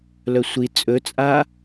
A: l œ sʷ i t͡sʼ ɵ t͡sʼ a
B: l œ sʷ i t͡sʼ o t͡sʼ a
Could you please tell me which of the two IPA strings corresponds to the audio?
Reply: A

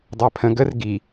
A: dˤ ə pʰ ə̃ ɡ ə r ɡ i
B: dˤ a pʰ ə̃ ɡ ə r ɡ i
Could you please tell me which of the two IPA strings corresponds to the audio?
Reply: B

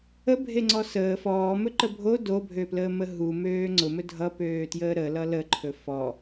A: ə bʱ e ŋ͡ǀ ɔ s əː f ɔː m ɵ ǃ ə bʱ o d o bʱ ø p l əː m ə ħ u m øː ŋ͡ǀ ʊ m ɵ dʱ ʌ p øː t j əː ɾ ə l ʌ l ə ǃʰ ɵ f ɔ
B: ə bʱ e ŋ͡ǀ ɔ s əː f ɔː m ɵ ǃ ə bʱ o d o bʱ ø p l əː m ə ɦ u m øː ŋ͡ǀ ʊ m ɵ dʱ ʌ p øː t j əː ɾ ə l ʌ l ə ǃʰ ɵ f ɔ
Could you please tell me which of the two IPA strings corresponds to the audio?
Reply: B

